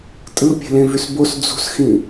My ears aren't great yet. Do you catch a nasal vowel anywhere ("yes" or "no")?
yes